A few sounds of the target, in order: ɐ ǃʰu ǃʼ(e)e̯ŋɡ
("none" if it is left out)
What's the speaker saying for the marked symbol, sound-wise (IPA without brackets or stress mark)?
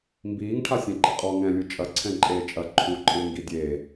ɨ